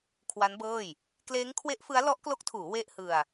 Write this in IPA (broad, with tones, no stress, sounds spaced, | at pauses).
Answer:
kʰ w a˦˥ n b ɤː˥˩ j | k l eː˦˥ ŋ kʰ w e˦˥ ʔ f ɯ˦˥ a̯ l ɔ˦˥ ʔ k l o˦˥ k̚ tʰ uː˩˦ w e˥˩ ʔ h ɯ˧ a̯